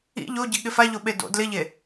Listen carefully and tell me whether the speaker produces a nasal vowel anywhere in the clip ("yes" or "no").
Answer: no